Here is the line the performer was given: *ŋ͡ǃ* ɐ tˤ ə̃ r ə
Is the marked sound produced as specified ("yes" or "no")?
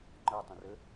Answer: yes